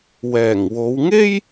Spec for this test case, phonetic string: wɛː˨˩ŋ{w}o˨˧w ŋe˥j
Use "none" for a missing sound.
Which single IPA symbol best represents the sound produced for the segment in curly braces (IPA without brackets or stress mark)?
w